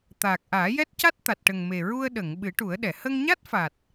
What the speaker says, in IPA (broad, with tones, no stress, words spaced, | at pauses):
t̪aː˨˩k̚ʔaː˨˩˦jɛ˦˥t̚ca˦˥t̚ t̪a˨˩t̚ʈə˨˩ŋme˨˩ɹu˧ə̯ ɗə˨˩˨ŋ ɓɨ˨˩˦ʈu˨˩˦ə̯ɗɛ˨˩˨ hə˧ŋɲa˦˥t̚fa˨˩t̚